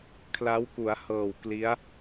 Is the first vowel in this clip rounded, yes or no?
no